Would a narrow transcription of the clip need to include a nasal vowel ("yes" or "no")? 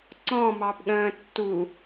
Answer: yes